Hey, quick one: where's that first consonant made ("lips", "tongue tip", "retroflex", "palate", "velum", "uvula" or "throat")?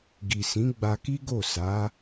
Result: velum